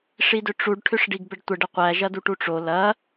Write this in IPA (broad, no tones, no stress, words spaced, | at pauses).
ʂidʏʈ͡ʂuɖ ʈʰʏʂɖiɡbəɖtʷəɖ əqʷæ ʒɐduʈuʈ͡ʂo lɐ